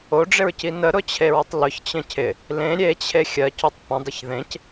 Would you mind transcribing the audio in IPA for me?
oɖ͡ʐɪɹci nəɾʊt͡ɕʰeɹətˤ lʊçt͡ɕə̃ cʰɪ | lẽ ɾʲet͡ɕʰe xʲɜcotˤ pə̃dˤəç ðẽc

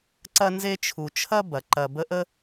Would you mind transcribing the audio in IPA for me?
ǀɐ˦nze˦t͡ʃʰu˨t͡ʃʰɐ˥ bɐ˩ǃɐ˨bə˦ ʔə˥

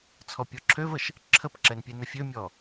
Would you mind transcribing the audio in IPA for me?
t͡sʰɔpʲɔǁʰøvəʃ | ǁʰəpǁɛn pʲɛnəfʲømʲɔ

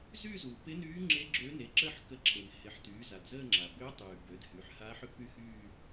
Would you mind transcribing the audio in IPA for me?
zyː˥˧zuː˩ pɪ˧˥nyː˧˥ŋ͡ǁe˧˥ ɡ͡ǁø˧˥ne˩˥ǁə˥˧ħ kə˧˥ǁʰe˩n hɪ˩˥ħtyː˩˥za˩d zəː˥˧ŋ͡ǁa˩ bʏː˧˥tˤyː˩ bø˩˥dhy˩˥ħ haː˧˥ħʏ˧˥py˥˧hyː˥˧

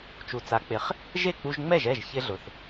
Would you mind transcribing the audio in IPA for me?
t͡ʃu˩t͡sa˩˥k͡pɪ˩˥χ | ʒe˥˩k͡pu˧ʒŋ͡mɛ˥˩ʒ ɛ˥˩ʒ çɪ˥ɮʊ˩θ

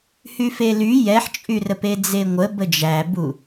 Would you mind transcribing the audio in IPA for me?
hyfely jɛħt͡ʃʼyrəp ed͡zeŋʷə bəd͡ʒæbu

